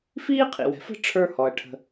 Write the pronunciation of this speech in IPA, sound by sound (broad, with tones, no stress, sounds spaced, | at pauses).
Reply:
f iː˥ qʰ ḭ˩ w ɛ̤˩ f ə̤˥ ʈ͡ʂʰ ə˞˦ h ɔ˩ ɐ̯ ʈʰ ə̤˨